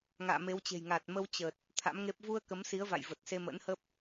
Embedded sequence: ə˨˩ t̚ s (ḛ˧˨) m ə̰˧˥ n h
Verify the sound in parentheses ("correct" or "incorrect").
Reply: incorrect